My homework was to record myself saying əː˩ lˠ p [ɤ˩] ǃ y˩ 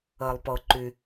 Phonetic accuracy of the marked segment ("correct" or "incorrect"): correct